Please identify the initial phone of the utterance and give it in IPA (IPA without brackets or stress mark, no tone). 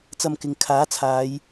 t͡s